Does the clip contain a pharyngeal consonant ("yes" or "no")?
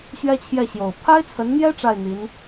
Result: no